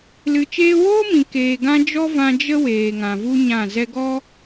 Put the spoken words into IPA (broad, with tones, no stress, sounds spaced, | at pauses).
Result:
l ɨ˨ t͡ʃ eː˧ w oː˦ m ĩ˨ k eː˨ ɡ ã˧ d͡ʒ ɔ˦ v ã˧ d͡ʒ ə˦ w eː˨ ŋ ã˨ v u˦ ɲ ã˦˨ z ɛ˧ ɡ ɔ˦